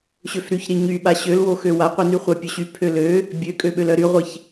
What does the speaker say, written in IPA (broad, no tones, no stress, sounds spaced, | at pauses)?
ɕ ø f ɾ y ç ɾ i ɲ y ɓ a ɕ ø l w o x ø w a qʷ i n y χʷ a pʲ ø ɕ y pʰ ø l ø | bʲ ø kʼ ø ɓ ø l œ ɾ y ʁʷ i ç